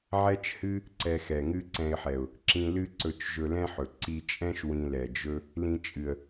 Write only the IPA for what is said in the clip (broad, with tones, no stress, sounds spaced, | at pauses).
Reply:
ʕ ɛ˦ t͡ʃ h ɨ˦ | ǀ ɛ˧ x ɛ˨ ŋ ɨ˦ ǀ ɛ̃˧ ɪ̯ ħ ɛ˨ ʊ̯ | ǁ ĩ˧ l ɨ˦ ǀ ɵ˧ t͡ʃ ʒ ɵ˧ l ɛ̃˦ ħ ɵ˨ ǀ i˧ t͡ʃʼ ɛ̃˦ ʃ w ĩ˧ l ɛ˨ d͡ʒ ɵ˦ | l ĩ˧ t͡ʃʼ ɨ˨ ə̯